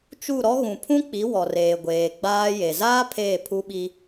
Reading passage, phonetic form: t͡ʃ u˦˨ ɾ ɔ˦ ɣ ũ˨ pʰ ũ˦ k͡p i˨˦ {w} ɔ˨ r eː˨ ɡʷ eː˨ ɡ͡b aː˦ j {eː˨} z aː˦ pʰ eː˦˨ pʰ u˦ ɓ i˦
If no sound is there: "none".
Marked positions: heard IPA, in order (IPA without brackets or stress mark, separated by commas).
w, e˨